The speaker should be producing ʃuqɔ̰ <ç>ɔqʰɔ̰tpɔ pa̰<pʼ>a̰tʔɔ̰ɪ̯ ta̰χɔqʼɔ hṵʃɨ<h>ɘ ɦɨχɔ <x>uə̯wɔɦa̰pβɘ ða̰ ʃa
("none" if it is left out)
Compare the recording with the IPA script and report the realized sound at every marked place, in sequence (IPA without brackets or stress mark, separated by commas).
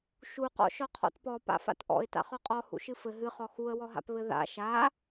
ʃ, f, f, x